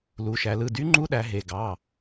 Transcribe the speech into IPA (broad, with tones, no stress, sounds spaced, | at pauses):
l u˩˧ ʃ æ˩˧ l ɯ˩˧˩ d y˧˥ ŋ͡ǃ u˧˥ ɗ æ˩˧ ɦ e˩˧˩ ɡ ɑ˩˧˩